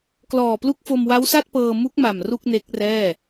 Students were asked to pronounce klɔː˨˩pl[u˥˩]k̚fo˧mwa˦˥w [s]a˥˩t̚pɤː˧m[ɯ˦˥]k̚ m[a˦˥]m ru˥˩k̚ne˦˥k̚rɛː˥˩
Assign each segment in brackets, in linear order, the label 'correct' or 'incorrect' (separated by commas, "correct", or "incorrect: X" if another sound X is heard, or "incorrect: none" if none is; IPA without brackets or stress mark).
incorrect: u˦˥, correct, incorrect: u˦˥, incorrect: a˨˩